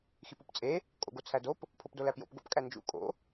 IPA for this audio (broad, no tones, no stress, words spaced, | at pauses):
xipupt͡sʼe | kʼo̰ɡot͡sʰædop | pʰopdolæpjo̰p ɡo̰pkʼænd͡ʒṵ kʼo̰